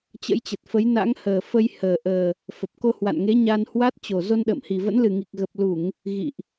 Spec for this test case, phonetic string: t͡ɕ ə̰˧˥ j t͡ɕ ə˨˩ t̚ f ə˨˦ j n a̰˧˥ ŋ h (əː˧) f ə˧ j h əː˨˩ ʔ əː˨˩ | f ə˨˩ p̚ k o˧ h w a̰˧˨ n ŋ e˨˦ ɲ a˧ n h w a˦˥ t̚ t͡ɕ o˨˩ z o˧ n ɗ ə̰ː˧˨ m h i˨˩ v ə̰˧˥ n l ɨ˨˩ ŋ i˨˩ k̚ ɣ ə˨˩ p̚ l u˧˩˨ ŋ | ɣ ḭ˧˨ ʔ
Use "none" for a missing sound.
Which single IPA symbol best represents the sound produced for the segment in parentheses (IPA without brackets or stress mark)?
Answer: əː˨˩